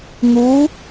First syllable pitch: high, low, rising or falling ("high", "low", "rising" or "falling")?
rising